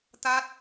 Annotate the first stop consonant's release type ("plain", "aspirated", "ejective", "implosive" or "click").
plain